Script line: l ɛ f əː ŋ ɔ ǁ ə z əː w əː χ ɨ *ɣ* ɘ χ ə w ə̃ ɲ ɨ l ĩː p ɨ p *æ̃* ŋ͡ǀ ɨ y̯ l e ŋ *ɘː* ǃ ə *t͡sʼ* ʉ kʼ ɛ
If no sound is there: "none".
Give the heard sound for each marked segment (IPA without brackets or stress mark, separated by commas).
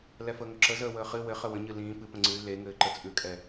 w, ə̃, ɘː, t͡sʼ